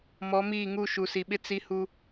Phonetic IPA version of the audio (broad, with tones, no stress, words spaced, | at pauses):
mɔ˨˦miː˦˨ ŋu˦˨ ʃu˨si˨ɓɪ˦ t͡si˦hu˦